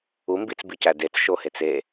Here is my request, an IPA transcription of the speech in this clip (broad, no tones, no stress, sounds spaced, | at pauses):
u m b i t͡s b i c æ d e t͡s ʃ o h e t͡s e